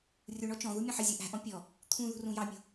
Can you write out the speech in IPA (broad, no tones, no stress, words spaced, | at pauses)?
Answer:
rʲuɳɔ t͡ʃɔ̃ðu mʲɔ̃ħɪzʲu ʔæ̤ʔɔ̃ pʲɔ | t̪ʰũ ðṳrũjɑmʲṳ